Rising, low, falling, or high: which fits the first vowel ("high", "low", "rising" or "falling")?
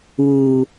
low